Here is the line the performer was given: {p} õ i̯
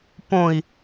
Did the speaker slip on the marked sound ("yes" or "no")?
no